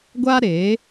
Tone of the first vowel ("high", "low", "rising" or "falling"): high